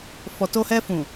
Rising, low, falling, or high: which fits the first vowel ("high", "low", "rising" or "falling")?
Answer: low